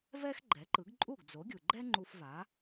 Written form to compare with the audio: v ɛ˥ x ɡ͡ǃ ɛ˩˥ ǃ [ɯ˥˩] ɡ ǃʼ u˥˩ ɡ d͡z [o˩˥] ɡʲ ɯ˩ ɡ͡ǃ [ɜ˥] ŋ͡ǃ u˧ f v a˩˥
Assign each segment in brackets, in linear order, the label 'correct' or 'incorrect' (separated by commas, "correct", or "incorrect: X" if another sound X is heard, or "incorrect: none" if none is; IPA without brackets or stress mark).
incorrect: ɯ˩˥, correct, incorrect: ɛ˥